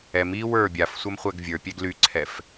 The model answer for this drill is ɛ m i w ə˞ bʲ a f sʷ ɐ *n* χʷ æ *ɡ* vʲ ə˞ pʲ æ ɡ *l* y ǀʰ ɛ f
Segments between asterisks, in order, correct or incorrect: incorrect, correct, correct

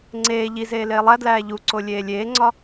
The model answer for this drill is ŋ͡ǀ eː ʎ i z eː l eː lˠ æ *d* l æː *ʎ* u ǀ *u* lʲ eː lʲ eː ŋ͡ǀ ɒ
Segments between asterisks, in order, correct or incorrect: correct, correct, incorrect

